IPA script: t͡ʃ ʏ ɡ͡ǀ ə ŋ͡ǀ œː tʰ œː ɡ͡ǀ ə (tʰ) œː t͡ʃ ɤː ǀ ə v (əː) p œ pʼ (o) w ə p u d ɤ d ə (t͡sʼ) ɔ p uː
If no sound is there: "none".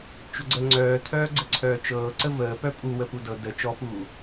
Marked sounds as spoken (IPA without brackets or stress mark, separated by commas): ǀʰ, əː, u, t͡ʃ